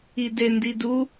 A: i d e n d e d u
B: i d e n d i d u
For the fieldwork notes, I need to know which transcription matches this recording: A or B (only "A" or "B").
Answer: B